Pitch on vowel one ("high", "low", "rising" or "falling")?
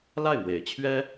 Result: falling